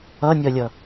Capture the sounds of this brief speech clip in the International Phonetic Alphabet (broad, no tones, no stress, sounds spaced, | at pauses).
ʌ nʲ ʌ lʲ ʌ